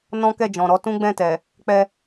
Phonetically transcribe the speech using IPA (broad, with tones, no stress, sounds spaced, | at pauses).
n ɔ̃˦ k ɛ˦˨ d͡ʒ ɔ̃˨ ɾ ɔ˨˦ t ũ˦ ɡ͡b ɛ̃˦˨ t ɛ˨ | k͡p ɛ˧